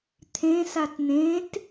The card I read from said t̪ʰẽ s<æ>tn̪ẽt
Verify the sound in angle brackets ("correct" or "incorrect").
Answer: incorrect